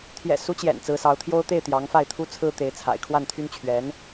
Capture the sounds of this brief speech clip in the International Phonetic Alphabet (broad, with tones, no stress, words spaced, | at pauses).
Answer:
t̪ʰjɛ̰˨˩ su˧˥t͡ɕjɛ̰˨˩n t͡sɹ̩˧˥sɑ˧˥ʊ̯t̪ʰjo˥ʊ̯ t̪e˥˩ɪ̯t̪jɑ˧˥ŋfa˥˩ɪ̯ t̪ʰu˥t͡sʰɹ̩˥t̪e˧˥ɪ̯ t͡sʰa̰˨˩ɪ̯ kʰwa˥˩nt̪ʰy˥n t͡ɕʰɥɛ˧˥n